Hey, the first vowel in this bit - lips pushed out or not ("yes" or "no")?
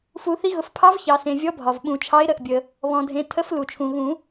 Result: yes